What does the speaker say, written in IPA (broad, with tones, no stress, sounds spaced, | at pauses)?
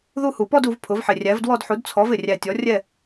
ð u˥˨ h u˨˩ p ɔ˥˨ d u˩˥ v pʰ ʊ˩˥ v ħ ɪ˨˩ rʲ æ˩˥ v d w ɔ˥˨ d ħ u˩˥ d t͡sʰ ɔ˩˥ v ɪ˨˩ rʲ æ˨˩ tʲ ɔ˩˥ rʲ ɛ˥˨